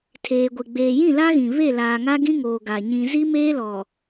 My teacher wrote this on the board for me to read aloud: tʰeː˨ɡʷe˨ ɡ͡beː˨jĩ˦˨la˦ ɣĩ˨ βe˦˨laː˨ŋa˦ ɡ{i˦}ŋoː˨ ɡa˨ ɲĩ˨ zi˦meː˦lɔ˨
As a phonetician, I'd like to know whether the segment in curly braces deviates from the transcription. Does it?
yes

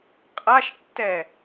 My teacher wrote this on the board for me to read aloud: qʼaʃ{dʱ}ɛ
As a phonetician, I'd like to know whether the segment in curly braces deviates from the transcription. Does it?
yes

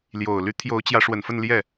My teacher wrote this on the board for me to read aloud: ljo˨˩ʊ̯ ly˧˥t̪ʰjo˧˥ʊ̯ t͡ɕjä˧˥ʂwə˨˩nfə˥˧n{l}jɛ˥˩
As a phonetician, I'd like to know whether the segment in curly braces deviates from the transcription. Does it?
no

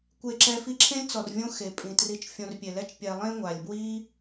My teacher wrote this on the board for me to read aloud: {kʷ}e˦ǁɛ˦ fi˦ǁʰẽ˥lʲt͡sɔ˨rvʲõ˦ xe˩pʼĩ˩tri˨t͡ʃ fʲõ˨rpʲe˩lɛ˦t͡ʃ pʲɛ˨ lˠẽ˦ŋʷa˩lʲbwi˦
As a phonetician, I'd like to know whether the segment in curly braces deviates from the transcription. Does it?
no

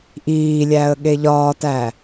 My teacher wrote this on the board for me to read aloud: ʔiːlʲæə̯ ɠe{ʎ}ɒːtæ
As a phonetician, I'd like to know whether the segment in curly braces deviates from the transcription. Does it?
no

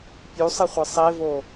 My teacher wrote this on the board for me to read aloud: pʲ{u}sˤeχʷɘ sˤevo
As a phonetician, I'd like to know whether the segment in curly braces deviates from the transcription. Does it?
no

